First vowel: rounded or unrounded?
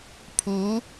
rounded